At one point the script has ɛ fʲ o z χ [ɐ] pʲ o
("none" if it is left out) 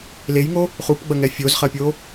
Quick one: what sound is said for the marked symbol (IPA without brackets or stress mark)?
ɐ